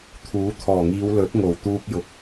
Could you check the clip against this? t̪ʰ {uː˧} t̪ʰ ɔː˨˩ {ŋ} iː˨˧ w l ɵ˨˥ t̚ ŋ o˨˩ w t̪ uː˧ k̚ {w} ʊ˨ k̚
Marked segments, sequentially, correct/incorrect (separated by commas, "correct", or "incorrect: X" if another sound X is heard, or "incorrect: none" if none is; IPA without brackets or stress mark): incorrect: uː˨˥, correct, incorrect: j